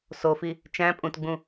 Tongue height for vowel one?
mid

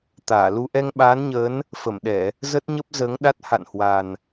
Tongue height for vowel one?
low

